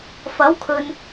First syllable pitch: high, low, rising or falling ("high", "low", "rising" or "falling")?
rising